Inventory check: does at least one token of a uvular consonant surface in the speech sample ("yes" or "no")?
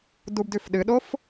no